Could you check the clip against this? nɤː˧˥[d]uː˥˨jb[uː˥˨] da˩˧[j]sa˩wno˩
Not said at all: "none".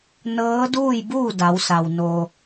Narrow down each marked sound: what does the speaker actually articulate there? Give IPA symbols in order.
d, uː˥˨, w

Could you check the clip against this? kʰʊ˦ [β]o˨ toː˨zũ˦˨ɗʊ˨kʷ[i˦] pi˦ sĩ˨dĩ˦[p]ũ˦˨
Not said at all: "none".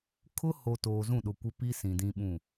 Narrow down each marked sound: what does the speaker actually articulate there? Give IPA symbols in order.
h, ɪ˦, ɓ

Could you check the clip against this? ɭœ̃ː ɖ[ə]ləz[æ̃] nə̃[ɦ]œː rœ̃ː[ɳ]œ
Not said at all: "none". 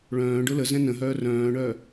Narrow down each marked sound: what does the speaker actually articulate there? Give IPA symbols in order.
ʊ, ɛ̃, ɦ, ɳ

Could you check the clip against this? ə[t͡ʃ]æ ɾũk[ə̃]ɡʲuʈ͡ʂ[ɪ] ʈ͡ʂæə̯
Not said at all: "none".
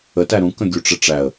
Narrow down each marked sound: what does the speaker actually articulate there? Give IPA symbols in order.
t, ə̃, ɪ

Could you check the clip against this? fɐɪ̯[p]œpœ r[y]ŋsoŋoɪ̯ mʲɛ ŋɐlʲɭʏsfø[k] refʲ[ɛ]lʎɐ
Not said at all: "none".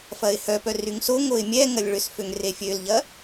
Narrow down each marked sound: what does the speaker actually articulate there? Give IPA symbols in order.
h, y, ŋ, ø

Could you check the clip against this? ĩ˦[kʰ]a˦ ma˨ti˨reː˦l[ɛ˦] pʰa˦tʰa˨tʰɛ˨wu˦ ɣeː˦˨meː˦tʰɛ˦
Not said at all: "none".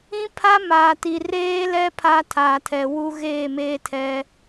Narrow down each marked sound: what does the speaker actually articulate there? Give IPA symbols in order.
pʰ, ɛ˦

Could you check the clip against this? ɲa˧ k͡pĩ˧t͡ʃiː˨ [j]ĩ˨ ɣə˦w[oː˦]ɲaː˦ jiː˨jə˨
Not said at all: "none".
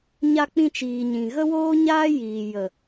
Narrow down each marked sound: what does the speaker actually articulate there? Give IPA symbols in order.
ɲ, oː˦

